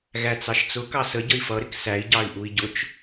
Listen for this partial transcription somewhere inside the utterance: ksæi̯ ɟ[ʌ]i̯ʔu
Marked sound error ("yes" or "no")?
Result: yes